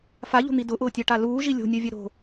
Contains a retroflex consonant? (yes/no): yes